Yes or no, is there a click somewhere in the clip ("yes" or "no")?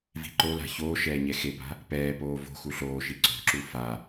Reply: yes